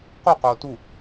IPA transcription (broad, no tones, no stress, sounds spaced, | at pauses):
q u q oː t u